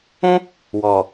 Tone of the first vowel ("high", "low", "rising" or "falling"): high